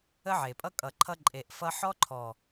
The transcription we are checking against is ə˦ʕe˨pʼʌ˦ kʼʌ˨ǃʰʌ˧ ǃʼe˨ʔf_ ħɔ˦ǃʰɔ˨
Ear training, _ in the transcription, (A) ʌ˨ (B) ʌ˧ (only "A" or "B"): B